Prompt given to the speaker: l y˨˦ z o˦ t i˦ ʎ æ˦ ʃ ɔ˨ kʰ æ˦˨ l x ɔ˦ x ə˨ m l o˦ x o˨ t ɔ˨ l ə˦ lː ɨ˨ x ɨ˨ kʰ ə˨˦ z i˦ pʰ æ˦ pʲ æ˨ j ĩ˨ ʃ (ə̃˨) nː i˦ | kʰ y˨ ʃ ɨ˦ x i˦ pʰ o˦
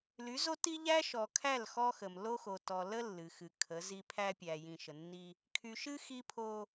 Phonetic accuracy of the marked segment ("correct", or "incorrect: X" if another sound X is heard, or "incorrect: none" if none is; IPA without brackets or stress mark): incorrect: ə˨